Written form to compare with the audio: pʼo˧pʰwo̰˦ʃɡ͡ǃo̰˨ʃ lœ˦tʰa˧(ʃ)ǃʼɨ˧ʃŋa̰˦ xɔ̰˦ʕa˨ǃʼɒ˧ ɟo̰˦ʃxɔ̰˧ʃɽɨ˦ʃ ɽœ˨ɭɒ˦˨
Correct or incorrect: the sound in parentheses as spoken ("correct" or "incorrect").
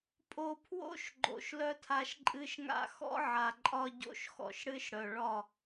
correct